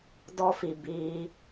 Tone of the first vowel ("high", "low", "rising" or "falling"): high